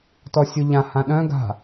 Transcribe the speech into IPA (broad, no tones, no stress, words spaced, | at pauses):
tɔsʲuʎã hãɗœ̃ ɡa̤